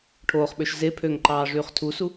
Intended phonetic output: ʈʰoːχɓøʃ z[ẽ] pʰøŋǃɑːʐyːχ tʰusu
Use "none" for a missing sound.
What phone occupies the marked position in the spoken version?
e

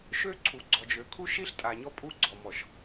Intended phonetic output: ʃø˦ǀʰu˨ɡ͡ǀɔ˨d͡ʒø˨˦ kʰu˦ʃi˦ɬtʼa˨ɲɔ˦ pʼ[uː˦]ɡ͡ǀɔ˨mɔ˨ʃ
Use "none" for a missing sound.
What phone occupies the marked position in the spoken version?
u˦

